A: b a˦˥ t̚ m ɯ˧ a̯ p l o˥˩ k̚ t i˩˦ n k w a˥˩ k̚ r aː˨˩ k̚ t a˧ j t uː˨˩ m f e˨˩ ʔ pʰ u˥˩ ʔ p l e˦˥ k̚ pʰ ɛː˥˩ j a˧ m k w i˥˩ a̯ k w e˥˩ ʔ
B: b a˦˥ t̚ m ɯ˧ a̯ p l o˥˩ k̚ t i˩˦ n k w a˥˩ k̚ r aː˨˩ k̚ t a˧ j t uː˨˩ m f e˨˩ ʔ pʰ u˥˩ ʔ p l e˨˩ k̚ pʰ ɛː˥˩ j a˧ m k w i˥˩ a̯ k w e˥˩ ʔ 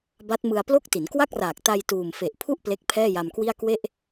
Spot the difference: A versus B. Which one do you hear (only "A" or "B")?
A